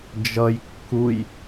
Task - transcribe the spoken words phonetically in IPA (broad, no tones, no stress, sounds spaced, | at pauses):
d͡ʒ ʌ j kː u j